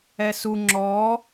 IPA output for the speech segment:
ɛ s u ŋ͡ǁ ɔ

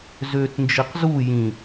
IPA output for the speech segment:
z ø t n d͡ʒ i q z u j ĩ

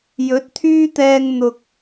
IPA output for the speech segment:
j ɵ˨˥ t̚ t̪ʰ yː˥ t̪ ɛː˧ ŋ n̪ ʊ˨ k̚

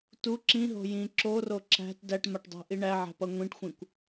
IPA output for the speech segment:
t u ǁ ĩ ɦ o̤ j ĩ ǁ o r o ǁ æ̤ t d æ ʈ m a ʈ dˤ æ̤ ʔ i ɳ æ ʕ æ̤ p ʌ ŋʷ ĩ ʈ xʷ ĩ kʷ

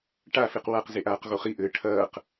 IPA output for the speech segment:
ʈ a f e q w a q z e ʔ aː q ɣ o χ i ʔ ɘː ʈʰ ɐː q

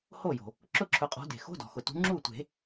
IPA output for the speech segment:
h o˥˩ j o̤˩ | ǁ ʊ˥˩ ǁʰ ʊ˨˦ qʼ ɔ̤˨˦ d e̤˩ x o̤˧˥˧ d ɔ̤˩ x ʊ˩ t ṳ˨˦ ŋ͡ǁ u˥˩ tʷ e̤˨˩˦

